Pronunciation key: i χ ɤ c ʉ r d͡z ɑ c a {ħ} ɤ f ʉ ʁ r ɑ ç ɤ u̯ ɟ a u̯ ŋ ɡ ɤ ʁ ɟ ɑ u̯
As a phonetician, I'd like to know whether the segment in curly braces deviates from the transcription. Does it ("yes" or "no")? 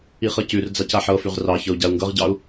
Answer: no